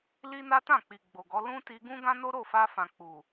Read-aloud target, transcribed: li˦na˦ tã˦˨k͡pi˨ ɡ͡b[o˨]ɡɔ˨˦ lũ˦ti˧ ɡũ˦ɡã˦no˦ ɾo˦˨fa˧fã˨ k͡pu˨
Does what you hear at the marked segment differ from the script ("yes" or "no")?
no